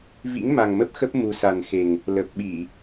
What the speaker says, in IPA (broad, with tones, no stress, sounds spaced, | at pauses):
v ḭ˧˥ ŋ m a˨˩ ŋ m ə˦˥ p̚ x ə˦˥ p̚ m u˨˩ s a˨˩ n x e˨˩ ŋ | l ə˨˩ p̚ ɓ i˧˩˨